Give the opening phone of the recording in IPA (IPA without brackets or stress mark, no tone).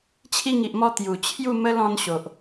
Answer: t͡ɕʰ